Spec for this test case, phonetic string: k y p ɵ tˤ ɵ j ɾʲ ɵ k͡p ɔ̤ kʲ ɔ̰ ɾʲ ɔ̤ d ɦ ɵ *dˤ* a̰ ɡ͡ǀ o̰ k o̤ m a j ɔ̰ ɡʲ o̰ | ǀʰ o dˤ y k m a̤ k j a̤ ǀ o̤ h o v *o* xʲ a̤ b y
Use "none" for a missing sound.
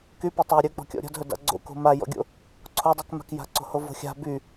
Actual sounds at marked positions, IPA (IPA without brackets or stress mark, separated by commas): d, o̤